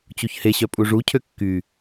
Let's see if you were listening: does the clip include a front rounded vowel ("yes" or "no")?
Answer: yes